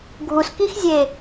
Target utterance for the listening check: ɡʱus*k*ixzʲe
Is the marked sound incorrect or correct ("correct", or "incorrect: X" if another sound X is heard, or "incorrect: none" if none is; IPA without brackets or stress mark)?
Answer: correct